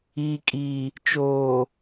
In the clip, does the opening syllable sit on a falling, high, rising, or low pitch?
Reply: low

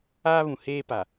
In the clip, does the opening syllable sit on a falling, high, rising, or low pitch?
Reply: high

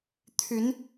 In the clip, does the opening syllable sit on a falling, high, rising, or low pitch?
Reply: rising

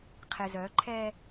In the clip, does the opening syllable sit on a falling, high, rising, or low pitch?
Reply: low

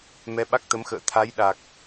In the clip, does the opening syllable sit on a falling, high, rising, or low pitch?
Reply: rising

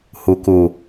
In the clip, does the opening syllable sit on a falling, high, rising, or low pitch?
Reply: low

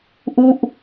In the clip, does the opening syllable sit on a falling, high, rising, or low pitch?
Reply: falling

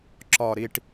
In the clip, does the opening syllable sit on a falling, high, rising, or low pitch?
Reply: low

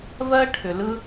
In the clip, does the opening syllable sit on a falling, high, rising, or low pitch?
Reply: high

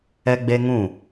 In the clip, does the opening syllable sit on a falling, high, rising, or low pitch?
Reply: high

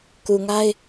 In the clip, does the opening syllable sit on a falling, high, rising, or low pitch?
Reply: low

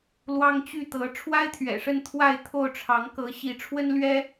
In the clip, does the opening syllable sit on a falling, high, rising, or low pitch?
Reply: high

